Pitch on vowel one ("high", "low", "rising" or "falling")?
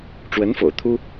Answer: rising